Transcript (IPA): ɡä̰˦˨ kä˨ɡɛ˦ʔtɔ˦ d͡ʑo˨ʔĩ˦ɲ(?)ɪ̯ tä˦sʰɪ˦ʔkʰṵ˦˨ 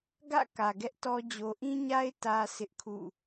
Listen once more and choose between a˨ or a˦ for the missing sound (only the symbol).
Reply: a˦